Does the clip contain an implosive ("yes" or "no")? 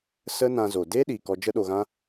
yes